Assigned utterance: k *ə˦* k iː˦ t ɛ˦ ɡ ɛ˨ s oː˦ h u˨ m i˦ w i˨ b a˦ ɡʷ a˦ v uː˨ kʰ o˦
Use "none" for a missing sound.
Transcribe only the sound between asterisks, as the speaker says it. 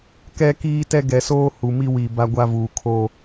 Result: ɛ˦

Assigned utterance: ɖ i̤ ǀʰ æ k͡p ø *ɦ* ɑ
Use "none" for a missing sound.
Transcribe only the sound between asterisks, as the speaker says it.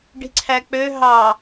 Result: ɦ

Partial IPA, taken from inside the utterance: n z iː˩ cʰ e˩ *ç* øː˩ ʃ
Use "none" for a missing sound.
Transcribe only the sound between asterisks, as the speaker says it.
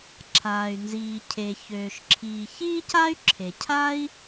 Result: ç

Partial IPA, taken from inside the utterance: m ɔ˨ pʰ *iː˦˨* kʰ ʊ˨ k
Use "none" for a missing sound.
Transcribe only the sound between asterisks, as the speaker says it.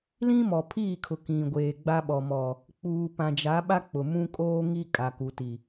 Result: iː˦˨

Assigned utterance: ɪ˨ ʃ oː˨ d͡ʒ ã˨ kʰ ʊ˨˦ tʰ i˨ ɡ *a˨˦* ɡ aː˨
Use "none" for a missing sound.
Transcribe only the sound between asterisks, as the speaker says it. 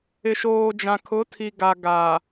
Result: a˨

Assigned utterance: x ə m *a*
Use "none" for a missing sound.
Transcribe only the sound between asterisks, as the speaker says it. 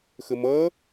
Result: ʌ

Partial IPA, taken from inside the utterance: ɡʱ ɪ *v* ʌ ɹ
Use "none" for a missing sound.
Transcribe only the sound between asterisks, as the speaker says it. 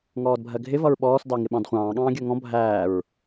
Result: v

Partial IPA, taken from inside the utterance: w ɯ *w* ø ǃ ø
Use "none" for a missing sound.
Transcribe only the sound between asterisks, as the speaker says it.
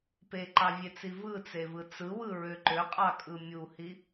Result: ɹ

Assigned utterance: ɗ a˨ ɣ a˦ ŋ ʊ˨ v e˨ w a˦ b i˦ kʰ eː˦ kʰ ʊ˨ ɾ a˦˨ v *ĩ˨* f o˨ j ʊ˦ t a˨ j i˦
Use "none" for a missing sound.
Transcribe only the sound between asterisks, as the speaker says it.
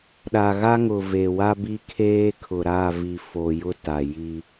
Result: i˨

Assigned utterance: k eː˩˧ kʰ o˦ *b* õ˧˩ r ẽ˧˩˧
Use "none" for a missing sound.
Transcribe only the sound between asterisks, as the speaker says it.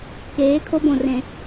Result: b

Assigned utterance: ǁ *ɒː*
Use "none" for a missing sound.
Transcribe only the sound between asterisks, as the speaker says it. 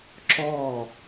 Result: ɒː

